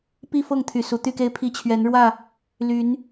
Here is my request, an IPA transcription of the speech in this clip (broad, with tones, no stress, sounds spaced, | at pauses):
p i˥˨ f ɤ˥˨ ŋ t̪ʰ y˨˩ s u˨˦ t̪ y˥˨ k e˦ ɪ̯ pʰ i˥˨ t͡ɕʰ ɥ ɛ˨˦ n ɻ w ä˥˨ | l y˨˦ n